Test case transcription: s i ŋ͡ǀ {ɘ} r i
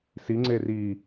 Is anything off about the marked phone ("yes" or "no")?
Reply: yes